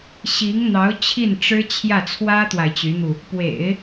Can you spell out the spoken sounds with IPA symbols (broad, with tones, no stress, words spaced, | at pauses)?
ɕi˧˥ŋn̪ɑ˧˥ʊ̯ t͡ɕʰi˥˩nʈ͡ʂɻ̩˥ t͡ɕʰjä˥˩t͡sʰwä˥t̪wa˨ɪ̯ t͡ɕy˧˥n̪u˧ | pwḛ˨˩˦ɪ̯